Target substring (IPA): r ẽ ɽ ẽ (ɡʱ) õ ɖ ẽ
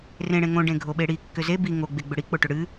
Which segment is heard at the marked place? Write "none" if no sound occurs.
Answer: ŋ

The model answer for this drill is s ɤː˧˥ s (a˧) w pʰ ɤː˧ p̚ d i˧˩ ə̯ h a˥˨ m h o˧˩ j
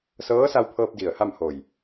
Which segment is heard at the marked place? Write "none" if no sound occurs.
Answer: a˧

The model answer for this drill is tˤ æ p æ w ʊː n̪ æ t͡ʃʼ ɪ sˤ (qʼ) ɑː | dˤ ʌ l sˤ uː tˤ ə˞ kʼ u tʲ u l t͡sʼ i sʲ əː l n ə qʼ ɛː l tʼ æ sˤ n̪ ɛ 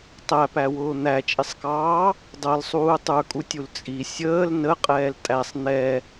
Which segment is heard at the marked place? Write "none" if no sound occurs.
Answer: k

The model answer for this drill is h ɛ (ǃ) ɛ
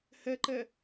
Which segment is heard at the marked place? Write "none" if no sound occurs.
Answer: ǃ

